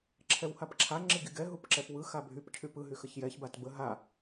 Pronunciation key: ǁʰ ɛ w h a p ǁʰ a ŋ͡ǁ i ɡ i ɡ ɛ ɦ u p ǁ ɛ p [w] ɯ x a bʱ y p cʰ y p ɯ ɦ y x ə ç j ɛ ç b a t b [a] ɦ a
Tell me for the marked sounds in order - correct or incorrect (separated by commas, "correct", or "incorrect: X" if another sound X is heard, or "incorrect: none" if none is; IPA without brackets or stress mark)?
correct, incorrect: ə